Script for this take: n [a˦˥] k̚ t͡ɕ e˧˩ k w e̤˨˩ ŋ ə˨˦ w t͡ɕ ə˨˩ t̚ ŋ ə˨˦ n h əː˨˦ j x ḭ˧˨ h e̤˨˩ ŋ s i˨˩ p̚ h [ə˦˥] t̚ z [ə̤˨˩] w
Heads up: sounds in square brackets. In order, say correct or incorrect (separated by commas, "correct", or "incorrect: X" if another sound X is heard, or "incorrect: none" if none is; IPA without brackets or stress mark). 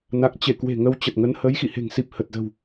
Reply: incorrect: a˨˩, incorrect: ə˨˩, correct